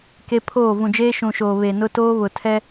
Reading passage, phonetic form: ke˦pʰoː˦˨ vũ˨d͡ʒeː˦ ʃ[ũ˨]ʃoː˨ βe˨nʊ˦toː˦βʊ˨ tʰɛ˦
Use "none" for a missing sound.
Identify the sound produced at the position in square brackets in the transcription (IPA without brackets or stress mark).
ũ˨